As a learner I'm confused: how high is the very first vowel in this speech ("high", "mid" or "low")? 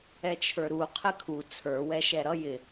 mid